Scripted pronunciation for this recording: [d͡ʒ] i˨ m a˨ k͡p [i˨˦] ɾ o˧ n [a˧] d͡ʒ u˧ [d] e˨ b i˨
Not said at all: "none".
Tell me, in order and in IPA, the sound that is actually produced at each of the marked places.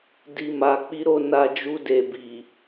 d, i˨˦, a˧, d

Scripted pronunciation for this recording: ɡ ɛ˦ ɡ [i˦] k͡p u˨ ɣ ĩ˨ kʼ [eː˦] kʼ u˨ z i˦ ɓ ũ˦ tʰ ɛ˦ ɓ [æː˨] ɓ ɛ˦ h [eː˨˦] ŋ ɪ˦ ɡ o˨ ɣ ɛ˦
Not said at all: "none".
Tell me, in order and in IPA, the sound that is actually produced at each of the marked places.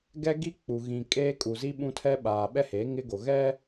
i˦, eː˦, aː˨, eː˨˦

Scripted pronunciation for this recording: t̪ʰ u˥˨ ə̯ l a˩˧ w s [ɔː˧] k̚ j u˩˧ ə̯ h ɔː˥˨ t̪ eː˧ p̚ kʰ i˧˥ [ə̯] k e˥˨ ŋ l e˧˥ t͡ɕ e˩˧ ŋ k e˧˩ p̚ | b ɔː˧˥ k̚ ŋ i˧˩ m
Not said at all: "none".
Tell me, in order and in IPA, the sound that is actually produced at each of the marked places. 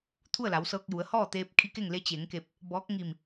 ɤː˧, none

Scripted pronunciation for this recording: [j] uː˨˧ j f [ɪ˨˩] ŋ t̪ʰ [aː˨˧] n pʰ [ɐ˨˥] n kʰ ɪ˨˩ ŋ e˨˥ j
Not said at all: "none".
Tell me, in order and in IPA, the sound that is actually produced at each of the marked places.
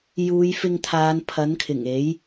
j, ɪ˧, aː˨˧, ɐ˨˥

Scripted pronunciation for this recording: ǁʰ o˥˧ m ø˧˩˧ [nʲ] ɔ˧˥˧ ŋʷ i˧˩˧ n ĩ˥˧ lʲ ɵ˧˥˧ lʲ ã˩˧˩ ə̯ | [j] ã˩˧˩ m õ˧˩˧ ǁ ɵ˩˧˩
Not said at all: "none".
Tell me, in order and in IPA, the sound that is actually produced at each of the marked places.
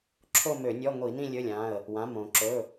nʲ, w

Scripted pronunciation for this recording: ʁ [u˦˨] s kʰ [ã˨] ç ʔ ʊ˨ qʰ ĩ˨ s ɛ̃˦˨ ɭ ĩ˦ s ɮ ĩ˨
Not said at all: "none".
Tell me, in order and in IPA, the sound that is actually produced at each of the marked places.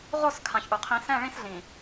o˦˨, ã˨

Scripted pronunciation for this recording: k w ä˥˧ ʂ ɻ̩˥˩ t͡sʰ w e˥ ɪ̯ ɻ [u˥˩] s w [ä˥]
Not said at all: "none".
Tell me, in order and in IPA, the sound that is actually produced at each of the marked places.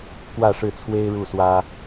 u˥˩, ä˥

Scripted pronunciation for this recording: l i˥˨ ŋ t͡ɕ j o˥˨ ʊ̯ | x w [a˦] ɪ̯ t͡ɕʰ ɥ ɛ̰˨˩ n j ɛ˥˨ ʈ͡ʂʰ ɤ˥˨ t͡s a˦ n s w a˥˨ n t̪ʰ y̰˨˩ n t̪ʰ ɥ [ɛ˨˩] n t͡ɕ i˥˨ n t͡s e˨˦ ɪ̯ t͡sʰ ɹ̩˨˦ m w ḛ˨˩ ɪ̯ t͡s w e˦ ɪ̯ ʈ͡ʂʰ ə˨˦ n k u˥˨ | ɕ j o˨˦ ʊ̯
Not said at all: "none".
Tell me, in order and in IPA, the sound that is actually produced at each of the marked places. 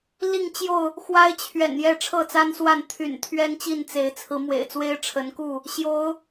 a˦, ɛ˦

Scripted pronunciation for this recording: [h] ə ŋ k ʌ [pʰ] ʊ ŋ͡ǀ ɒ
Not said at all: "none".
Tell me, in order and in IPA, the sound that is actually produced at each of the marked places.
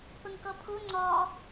p, pʰ

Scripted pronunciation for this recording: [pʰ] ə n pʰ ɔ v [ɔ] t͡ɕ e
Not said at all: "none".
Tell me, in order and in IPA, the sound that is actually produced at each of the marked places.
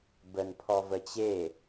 b, ə

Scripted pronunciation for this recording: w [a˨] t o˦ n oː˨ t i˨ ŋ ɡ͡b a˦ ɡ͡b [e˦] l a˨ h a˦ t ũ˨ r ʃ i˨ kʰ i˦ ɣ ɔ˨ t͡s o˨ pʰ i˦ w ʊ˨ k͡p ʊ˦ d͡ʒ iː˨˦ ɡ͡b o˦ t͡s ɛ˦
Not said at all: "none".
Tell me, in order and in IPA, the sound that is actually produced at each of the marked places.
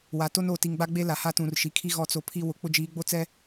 a˨, e˦

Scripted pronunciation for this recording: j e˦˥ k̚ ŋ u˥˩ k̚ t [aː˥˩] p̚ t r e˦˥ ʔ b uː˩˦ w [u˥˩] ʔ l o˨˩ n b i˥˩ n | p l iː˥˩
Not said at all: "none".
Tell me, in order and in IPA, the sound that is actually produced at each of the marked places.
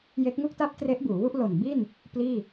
a˥˩, u˥˩

